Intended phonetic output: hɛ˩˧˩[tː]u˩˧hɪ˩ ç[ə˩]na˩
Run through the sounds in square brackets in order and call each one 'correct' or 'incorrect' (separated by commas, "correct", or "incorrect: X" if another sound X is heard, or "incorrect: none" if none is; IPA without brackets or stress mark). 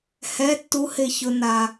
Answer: correct, incorrect: ʊ˩